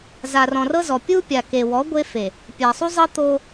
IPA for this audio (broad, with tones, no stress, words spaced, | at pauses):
za˨rɔ̃˨rɤ˦zɔ˨ pʲu˦ pʲa˨ke˨wɔ˨˦ ɡʷe˦fe˨ | pʲa˨sˤu˦zˤɤ˦ t̪o˦